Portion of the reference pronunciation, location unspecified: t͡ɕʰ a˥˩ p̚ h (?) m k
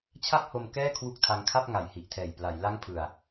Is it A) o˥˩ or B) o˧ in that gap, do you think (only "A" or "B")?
B